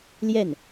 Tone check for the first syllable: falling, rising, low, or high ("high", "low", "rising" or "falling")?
falling